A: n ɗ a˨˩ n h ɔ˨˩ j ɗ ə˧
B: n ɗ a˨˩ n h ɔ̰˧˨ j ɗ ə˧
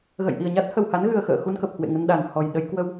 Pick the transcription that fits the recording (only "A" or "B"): A